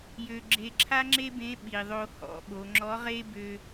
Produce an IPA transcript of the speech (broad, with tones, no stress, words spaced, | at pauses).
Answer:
jø˧ ɡ͡ǁe˧ǁʰa˥ŋ͡ǁe˥bẽ˧˥ ɓi˩ðˤo˧ hɔ̰˧˥ɓo˩˧ŋ͡ǁɔ˧˥ ʁe˥ bø˧